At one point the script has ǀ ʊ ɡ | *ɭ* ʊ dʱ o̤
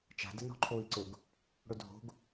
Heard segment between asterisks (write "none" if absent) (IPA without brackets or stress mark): ɽ